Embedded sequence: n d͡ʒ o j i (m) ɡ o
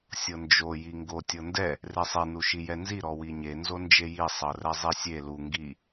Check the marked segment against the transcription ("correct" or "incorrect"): incorrect